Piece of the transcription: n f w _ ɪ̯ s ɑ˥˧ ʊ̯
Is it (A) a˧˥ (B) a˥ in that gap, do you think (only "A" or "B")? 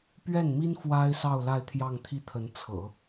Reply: B